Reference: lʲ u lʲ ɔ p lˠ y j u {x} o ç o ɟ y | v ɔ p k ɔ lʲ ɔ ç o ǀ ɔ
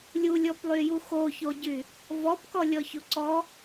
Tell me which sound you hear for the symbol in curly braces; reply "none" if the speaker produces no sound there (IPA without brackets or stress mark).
x